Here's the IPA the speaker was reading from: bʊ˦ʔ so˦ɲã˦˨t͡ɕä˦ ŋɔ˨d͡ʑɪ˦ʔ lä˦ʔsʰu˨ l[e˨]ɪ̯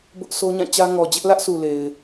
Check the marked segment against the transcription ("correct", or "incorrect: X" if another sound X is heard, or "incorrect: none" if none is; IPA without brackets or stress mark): correct